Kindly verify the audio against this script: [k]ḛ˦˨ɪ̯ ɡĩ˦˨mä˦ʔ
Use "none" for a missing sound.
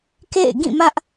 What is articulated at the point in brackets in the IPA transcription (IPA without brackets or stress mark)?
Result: k